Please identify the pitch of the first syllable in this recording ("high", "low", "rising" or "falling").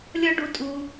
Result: high